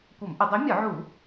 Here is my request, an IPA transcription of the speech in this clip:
kʷ ə˧˩˧ m ʔ ə˧˩˧ dˤ o˨˥ mʲ ɒ˧˩˧ ʕ u˧˩˧

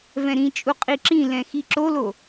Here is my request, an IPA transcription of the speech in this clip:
v ɛ̃ ɾ ĩ t͡ʃʼ u qʼ i ǁ ĩ l ɛ̃ x i ǁ o l o

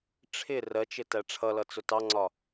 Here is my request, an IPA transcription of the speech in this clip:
ʈ͡ʂʰ ɪ r ɜ t͡ʃ ɪ t æ ʈ͡ʂʰ ʌ l ʌ t͡s ʊ t ɑ ŋ͡ǀ ɒ

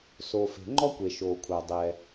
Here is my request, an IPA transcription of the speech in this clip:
s o˩ f e̤˩ ŋ͡ǃ ɔ˥ kʷ e˩ ʃ oː˩ kʷʰ a˩ dˤ ɛ˩

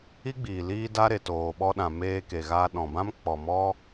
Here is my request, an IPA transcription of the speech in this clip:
i˦ ɡ͡b iː˨ l iː˦ d a˦ ɾ e˨ t oː˨ ɓ ɔ˧ ɗ ã˨ m eː˧ k e˨ ɣ aː˧ ɗ ɔ̃˨ b ã˦ m k͡p ɔ˨ m ɔ˦

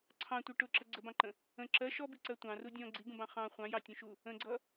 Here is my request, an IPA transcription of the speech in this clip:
ǀʰ ɑ̃ tʷ i ʈ ʊ ǁ ə ɡ͡ǀ ə b ɑ̃ ǃ ə̃ | ə̃ ǁ ɜ ʃ ɔ b i ǀ ɜ tʷ ɑ̃ r u dʲ ɔ̃ ɡ͡ǀ i ɡ ũ b ɑ̃ χ ɑ̃ χʷ ɑ̃ j ɑ tʲ ũ ʃ u | ə̃ ɡ͡ǀ ʌ

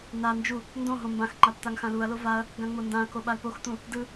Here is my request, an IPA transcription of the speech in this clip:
n a n d͡ʒ u | n d õ ɦ õ m b ã x ŋ͡ǃ a p t̪ a ŋ x ã l u ɐ̯ l o v a ɐ̯ | ɡ ã ŋ͡m o n d ã ɐ̯ k o ɓ a l p o x t̪ ũ | d ɯ

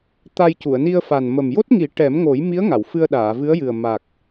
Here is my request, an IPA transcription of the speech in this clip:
t̪ a˧ j c u˨˩˨ ə̯ n i˧ ə̯ f a˨˩ n m ə˨˩ m j o˦˥ t̚ ŋ i˨˩˦ ʈ ɛ˨˩˦ m ŋ o˨˩˦ j m i˧˥ ə̯ ŋ a˨˩˨ w f ɨ˧ ə̯ ɗ aː˨˩˨ v ɨ˧˥ ə̯ j ɨ˨˩ ə̯ m a˨˩ k̚

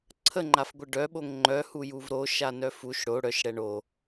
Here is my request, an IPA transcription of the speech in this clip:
ǀʰ ə ŋ͡ǃ a f ɡʷ ə ɖ œ ɓ o ŋ ŋ͡ǃ œ h u j u v ɾ o ʃ a n œ f u ʃ ɽ o ɽ œ ʃ ɽ ɛ ɳ o

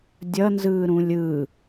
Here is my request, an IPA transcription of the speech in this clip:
dʲ ʌ n z ɯː ɾ ũ lʲ ɯ

